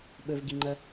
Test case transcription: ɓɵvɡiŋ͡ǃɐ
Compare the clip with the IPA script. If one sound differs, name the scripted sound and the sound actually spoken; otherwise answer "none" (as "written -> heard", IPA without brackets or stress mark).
none